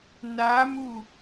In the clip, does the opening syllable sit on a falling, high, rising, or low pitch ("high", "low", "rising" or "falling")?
rising